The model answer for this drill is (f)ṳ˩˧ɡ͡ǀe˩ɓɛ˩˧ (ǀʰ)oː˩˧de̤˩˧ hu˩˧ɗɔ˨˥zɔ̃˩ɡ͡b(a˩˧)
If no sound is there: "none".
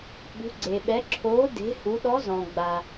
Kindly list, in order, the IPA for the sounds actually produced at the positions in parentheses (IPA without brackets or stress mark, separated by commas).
ɓ, ǁʰ, a˩